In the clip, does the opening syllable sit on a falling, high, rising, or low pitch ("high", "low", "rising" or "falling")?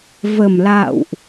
low